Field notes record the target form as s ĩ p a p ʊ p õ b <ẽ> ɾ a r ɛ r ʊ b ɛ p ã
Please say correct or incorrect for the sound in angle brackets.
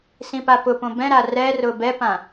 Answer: incorrect